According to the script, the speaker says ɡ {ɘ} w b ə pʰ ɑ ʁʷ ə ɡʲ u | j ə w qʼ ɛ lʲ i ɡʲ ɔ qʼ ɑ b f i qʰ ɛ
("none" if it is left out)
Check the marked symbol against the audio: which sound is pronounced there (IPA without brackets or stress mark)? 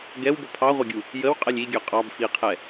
ɛ